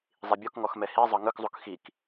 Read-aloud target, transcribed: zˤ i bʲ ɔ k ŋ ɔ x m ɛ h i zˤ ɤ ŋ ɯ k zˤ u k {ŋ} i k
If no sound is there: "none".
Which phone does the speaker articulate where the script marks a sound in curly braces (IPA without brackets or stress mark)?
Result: x